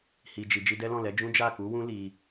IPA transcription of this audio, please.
h i˨ d͡ʒ i˨ d͡ʒ i˧ d ɛ˦ l ɔ̃˦˨ l ɛ˨˦ d͡ʒ ũ˦ d͡ʒ a˦˨ k u˨˦ w ũ˦ l i˧

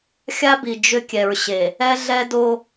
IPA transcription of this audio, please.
xʲ a˦ b i˨ d͡ʒ ʏ˦ kʲ ɛ˨ ɹ ɕ e˨ | ɛ˦ ɮ ɛ˦ d o˦

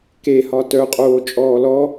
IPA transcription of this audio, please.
k e h ɒ t œ qʼ oː t͡ʃʼ ɔː l ɔ

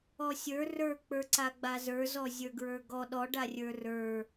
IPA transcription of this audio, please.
ɔ sʲ ə˞ r ə˞ k͡p ə˞ ǀ a ɡ͡b a z ə˞ z ɔ zʲ ə˞ ɡ ɹ ə˞ ɡ ɔ ɗ ɔ ɖ a rʲ ə˞ r ə˞

